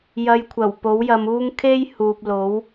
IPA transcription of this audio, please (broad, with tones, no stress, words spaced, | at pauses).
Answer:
jɐ˨jkʷʰɐ˨˩w po˨˥wjɐ˨˧muː˥ŋ kʰe˥j huː˨p̚lo˨˥w